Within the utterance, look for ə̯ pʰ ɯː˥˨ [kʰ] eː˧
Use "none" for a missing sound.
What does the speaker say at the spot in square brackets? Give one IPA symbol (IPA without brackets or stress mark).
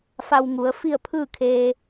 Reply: kʰ